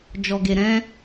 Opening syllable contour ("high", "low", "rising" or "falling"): low